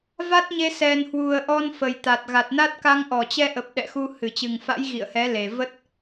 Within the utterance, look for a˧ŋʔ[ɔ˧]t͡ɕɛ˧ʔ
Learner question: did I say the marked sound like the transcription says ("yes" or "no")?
no